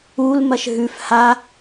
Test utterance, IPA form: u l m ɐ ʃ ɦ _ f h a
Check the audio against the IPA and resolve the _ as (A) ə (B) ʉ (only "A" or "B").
B